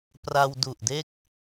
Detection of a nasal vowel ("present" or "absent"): absent